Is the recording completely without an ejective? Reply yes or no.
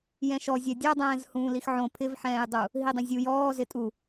no